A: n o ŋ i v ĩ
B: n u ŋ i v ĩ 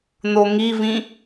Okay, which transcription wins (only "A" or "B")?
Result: A